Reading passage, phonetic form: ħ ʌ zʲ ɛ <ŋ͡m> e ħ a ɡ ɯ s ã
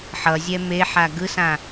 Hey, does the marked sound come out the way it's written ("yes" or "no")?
no